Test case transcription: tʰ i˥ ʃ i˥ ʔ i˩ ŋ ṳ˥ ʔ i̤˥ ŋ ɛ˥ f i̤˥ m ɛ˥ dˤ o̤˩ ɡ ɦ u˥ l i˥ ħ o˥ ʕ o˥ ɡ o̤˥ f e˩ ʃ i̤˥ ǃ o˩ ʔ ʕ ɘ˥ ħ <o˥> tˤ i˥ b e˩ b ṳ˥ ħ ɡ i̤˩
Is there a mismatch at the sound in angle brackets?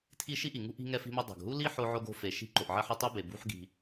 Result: no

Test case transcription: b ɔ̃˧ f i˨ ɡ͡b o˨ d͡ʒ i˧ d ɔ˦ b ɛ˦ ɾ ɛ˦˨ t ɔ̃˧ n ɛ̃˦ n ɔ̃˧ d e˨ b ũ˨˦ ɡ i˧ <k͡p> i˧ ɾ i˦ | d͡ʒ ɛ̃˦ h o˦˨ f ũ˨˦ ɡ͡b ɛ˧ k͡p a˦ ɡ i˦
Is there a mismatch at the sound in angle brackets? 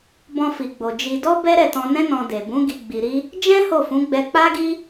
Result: yes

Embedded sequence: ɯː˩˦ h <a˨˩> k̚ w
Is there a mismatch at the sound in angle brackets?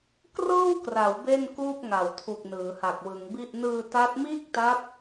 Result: no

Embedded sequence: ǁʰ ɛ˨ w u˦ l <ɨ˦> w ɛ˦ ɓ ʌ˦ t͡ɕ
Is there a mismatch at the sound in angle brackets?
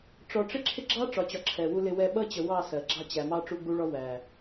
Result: yes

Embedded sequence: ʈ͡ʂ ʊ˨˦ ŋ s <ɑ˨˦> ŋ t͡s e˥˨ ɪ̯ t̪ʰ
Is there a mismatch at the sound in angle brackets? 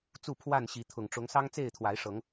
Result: yes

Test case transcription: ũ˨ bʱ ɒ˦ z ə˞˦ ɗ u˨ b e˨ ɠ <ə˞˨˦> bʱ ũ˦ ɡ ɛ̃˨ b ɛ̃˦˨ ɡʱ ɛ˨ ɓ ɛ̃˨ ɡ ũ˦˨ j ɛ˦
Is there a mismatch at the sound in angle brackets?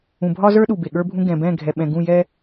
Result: yes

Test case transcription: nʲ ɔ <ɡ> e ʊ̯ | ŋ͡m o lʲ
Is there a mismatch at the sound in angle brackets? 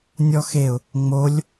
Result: yes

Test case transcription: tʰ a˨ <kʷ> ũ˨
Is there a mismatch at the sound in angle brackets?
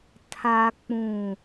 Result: yes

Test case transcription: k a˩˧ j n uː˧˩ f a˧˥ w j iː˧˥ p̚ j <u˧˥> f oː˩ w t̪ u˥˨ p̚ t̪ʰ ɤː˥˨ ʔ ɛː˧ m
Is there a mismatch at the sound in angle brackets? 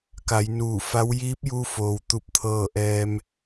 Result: yes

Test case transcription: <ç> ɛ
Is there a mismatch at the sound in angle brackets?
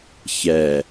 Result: no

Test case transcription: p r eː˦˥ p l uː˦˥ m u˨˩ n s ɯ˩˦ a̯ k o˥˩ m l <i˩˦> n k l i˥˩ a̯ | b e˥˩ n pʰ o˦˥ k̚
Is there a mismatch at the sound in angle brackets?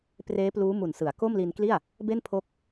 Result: yes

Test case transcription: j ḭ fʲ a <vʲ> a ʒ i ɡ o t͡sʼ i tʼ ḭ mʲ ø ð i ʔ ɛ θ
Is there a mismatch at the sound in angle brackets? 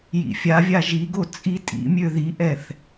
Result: no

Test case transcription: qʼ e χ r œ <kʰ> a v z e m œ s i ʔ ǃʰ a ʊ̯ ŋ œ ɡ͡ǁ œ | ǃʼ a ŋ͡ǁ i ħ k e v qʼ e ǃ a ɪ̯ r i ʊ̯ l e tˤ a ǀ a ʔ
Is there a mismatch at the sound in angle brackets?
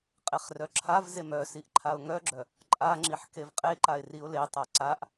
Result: yes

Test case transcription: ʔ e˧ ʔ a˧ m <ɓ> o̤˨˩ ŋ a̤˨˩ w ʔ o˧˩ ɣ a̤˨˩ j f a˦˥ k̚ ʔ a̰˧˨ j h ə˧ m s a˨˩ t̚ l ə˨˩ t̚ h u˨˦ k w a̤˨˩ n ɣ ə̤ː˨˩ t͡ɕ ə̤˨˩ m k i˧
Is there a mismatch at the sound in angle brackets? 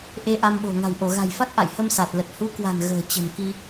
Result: no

